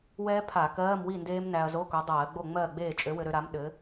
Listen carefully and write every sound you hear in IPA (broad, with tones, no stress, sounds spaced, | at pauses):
w ɛː˦˥ pʰ a˧˩˧ k ɜː˧˥˧ m w i˥˨ n d eː˦˥ m n æ˧ ɐ̯ z o˧˥˧ k o˨˥ dˤ ɜː˧˩˧ ɡ͡b o˥˨ ŋ͡m ɜː˥˨ ɡ͡b eː˥˨ t͡ʃʼ ø˨˥ w ɘ˧ ɾ ø˧ ɾ a˨˥ m ɗ ɘ˨˥